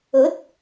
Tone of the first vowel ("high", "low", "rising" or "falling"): rising